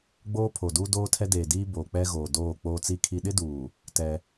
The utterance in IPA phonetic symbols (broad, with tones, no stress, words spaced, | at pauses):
ɡ͡boː˦pʰo˨duː˦ doː˦tʰɛ˦deː˨diː˦ boː˨k͡pɛ˦ɣoː˨ doː˦˨ k͡poː˦t͡si˦kʰi˦ ɗɪ˦duː˨ | tɛ˦